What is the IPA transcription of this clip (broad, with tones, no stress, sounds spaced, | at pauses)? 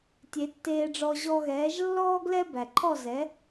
tʲ e˩˥ tː eː˧ ɖ͡ʐ ɔ˧ ʑ ɔ˧ ɣ ɛː˩˥ ʒ lː ɔː˥ ɡ l ɛ˥ b æ˩ ǃʰ ɔ˥˩ z ɛ˩˥